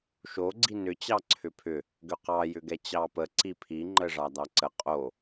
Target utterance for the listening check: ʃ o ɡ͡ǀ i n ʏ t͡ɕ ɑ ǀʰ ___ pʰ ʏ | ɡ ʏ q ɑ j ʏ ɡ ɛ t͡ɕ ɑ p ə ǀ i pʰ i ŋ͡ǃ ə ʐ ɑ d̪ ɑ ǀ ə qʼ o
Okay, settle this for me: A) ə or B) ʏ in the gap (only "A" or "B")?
B